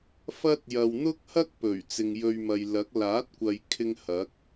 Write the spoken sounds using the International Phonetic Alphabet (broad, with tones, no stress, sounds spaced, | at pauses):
f ɐ˥ t̚ j ɐ˧ w n̪ ʊ˥ k̚ h ɐ˥ k̚ p ɵ˨˩ ɥ t͡s ɪ˨ ŋ j ɵ˧ ɥ m ɐ˨ j l ɐ˨˥ k̚ l aː˨˥ t̚ kʷ ɐ˨ j kʰ ɪ˥ ŋ h ɐ˨˥ k̚